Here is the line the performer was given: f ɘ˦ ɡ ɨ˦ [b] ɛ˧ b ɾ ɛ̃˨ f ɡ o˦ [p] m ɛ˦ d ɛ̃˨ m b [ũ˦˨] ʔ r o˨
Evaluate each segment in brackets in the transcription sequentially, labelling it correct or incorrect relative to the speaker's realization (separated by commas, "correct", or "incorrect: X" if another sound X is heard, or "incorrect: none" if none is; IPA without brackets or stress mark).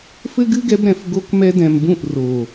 incorrect: ɡ, incorrect: k, correct